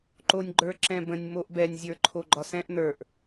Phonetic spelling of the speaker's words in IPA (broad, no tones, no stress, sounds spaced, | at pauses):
ǃ o nʲ ɡ͡ǃ ə˞ ǁ ɛ̃ b ə̃ nʲ m o ʔ b ɛ nʲ zʲ ə˞ ǃʰ o ɡ͡ǃ ɒ s ɛ̃ ʔ n ə˞ ʔ